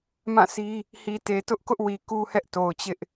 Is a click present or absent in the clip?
absent